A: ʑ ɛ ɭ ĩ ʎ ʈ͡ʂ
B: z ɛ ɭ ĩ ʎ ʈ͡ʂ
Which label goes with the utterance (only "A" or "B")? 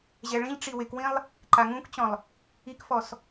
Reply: A